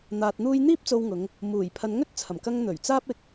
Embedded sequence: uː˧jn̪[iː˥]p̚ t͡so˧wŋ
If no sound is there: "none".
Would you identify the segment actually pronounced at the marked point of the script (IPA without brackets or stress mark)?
iː˥